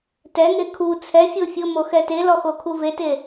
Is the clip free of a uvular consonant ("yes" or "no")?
yes